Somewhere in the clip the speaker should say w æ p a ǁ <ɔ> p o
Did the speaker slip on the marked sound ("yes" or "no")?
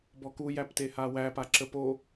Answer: yes